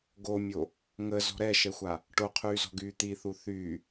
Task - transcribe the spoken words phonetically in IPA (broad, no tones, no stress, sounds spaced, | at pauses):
ɡ o mʲ o | ŋ ə z ɔ̤ ɾ ɛ ʃ ɛ xʷ a | ʈ o qʰ yː z ɔ̤ ɡ yː t̪ i θ u θ y